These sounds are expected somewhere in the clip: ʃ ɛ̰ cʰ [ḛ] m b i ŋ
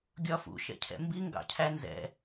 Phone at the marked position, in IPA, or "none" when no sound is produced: ɛ̰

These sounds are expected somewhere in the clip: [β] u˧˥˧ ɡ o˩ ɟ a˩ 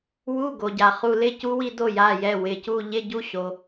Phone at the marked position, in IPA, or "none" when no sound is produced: w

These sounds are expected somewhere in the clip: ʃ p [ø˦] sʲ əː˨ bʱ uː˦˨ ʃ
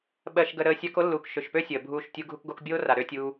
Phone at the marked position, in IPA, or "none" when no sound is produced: ø˦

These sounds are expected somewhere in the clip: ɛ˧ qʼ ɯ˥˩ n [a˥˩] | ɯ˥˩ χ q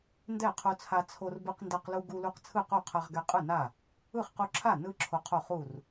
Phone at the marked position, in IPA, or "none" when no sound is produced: a˥˩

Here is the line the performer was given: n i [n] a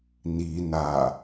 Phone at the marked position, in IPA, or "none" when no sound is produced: n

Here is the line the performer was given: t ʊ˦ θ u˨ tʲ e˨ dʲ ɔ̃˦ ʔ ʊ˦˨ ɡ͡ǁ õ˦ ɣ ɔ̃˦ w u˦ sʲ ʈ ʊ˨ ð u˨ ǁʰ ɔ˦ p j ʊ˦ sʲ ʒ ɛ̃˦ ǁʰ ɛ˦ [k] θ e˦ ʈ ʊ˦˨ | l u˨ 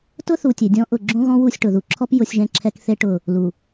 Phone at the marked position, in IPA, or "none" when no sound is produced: k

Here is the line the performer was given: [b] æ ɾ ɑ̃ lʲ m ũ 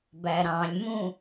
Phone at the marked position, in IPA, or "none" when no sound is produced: b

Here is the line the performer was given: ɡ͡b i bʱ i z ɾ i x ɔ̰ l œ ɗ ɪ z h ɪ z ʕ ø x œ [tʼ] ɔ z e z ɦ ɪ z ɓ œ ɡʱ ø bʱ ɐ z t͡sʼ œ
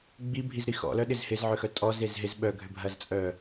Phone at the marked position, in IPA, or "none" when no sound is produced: tʼ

